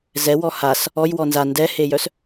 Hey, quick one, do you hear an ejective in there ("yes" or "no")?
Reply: no